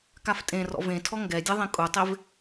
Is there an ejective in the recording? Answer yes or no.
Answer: yes